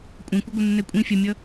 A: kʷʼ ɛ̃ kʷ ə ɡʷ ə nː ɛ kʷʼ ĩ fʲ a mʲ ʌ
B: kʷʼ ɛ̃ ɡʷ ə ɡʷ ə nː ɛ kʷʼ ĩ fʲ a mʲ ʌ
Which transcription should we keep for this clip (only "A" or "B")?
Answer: A